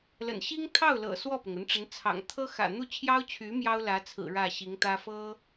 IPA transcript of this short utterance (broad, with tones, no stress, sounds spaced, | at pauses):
l ə̰˨˩ n ɕ i˥ ŋ t̪ʰ ɑ˥˩ ʊ̯ l ɤ̰˨˩ s w ɔ˥˩ p ʊ˩ ŋ ə˧˥ n ʈ͡ʂ ə˧˥ n t͡sʰ ɑ̰˨˩ ŋ t̪ʰ ɤ˥ x ä̰˨˩ n̪ u˥˩ t͡ɕʰ j ɑ˥ ʊ̯ t͡ɕʰ y˧˥ m j ɑ˥ ʊ̯ l ä˧˥ t͡sʰ ɹ̩˨˩ ɻ ä˥˩ ɕ i˧˥ ŋ t̪ ä˥ f ɤ˥